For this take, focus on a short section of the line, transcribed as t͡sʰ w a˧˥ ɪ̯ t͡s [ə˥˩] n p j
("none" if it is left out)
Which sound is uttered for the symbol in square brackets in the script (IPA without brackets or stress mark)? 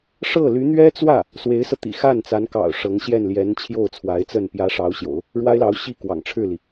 ə˥˩